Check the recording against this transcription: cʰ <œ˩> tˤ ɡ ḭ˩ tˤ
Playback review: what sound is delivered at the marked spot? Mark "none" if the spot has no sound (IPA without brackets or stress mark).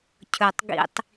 ɵ˩